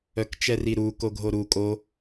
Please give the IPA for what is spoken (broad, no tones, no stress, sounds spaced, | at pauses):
œ k t͡ʃ ɛ r i ɾ u k o ɡʱ o ɾ u kʼ o